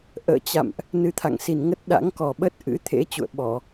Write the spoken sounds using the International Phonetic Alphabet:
ʔə̰ː˧˨t͡ɕa̰˧˨mʔ | nɨ˧t̪ʰa̰˧˨ŋsi˨˩n ŋə˦˥t̚ ɗa̰˧˥ŋkɔ˨˩ɓə˦˥t̚ ʔɨ̰˧˥t̪ʰḛ˧˥ t͡ɕṵ˧˨ə̯ɓɔ˧˩˨

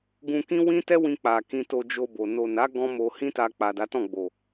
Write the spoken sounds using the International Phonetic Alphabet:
ɡũ˧kĩ˦ wĩ˦tɛ˦wĩ˧k͡pa˨ kĩ˧to˧d͡ʒo˧bo˨ no˨na˨˦ ɡɔ̃˦mo˧ hĩ˦ta˧ k͡pa˨da˨˦tɔ̃˦˨ ɡ͡bo˨

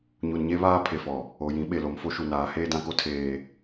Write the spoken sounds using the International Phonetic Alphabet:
ɲu˨nɲe˦βaː˦ pʰe˨fɔ˨ | o˨jĩ˨˦ ɓe˨lo˨m fo˦ʃu˨naː˨˦ heː˦dã˦ko˦ tʰeː˦

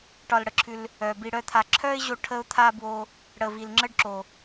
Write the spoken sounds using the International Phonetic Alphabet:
ʈɒ˧lɽə˨ǁʰʉ˧l | œ˨bi˧ ɽœ˦t̪ʰa˧ ǁʰœ˦ɪ̯ʑo˧ ʈʰə˦ʊ̯t̪ʰa˦ bwo˧ | ɽə˨vi˨lŋ͡ǁə˦ɖǁo˨

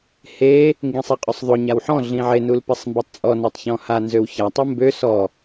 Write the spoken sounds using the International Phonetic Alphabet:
he | ŋɡĩsˤeqʼøsˤðˤo ɲawħɔ̃ ɮĩʕe nulpɛsˤmbɛtˤt͡sʼɔ notˤçɔ̃ha nzøwça tˤumbø sɔ

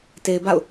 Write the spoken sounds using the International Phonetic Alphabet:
te˨ɪ̯ba̰˦˨ʊ̯

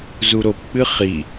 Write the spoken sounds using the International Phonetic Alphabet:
zuɾopk͡pɨ χi

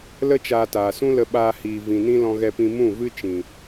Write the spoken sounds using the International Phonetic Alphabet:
lə˦t͡ʃaː˧taː˨sũ˦ lə˧ɓaː˧hiː˨ vĩ˨nĩ˦ lɔ̃˦ɣɛ˦pĩ˦ mũ˦˨vɨ˦ t͡ʃĩ˨

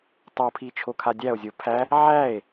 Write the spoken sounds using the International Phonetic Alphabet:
tˤopʰi t͡ʃʰokʰadʲæo̯zʲo pʰæ | ʕæe̯

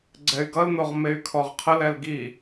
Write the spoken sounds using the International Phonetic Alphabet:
ɡ͡ǀɛy̯ɡʌln̪oʁ mey̯kʰɔʁqʰəlɛl ɡi

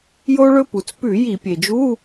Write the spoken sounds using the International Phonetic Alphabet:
jo˧ɭɵ˧ pu˩t͡spʉ˧˩˧ ji˧˩˧pʲe˩d͡ʒu˧˥˧

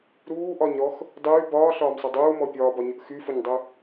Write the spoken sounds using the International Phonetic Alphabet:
ɾuːʔɒɲɾɔx | dˤyː bɒːɬɒːmsˤy dˤuːmɔ pʲɒːbɒɲəʔ xyfəɲdˤu

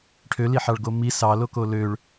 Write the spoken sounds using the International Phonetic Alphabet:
ʈʰøliħɑɭɡo mi sɑloko løɭ

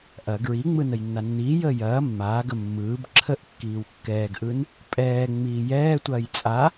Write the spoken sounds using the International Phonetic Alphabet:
ʔɐ ɡɹiŋ͡mɯ nəjnːanːiːjəː jɐː mːaːɡə mːɯːb ǁʰəʔ kːiːwkːɛːɡʔɯn | pʼɛː ŋ͡miːjɛːtʷɐːj t͡sʼa

